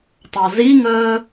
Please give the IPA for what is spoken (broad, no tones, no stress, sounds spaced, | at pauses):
tˤ a z i ŋ əː